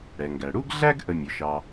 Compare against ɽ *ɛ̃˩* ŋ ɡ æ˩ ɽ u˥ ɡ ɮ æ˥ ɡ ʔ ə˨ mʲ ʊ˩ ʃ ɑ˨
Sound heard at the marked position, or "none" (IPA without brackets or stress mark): ɛ˩